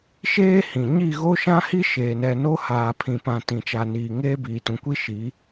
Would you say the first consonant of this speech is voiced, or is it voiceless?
voiceless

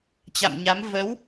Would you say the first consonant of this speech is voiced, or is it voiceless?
voiceless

